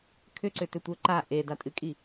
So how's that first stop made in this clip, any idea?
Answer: aspirated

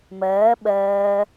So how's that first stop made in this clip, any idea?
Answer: implosive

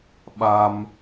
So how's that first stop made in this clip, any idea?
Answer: implosive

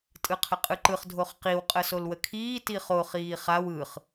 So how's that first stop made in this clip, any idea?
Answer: ejective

